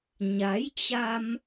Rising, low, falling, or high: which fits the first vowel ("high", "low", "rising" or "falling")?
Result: rising